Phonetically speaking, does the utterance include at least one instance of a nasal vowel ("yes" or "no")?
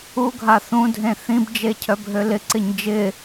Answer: yes